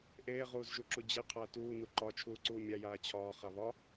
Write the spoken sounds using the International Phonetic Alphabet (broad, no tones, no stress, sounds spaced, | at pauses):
ʔ eː ʁ uː z ʒ u ǁ u d͡ʑ e qʰ ɐː t uː n u ǃ ɒ t͡ʃʰ uː ǀ uː mʲ a j aː t͡ɕʰ ɒː χ a β ɒ